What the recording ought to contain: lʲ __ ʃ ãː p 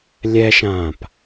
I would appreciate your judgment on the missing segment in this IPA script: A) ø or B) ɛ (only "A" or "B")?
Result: B